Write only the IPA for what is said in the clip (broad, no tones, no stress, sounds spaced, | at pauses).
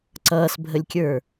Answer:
ǀ ʌː s bʱ ə lʲ kʲ ə˞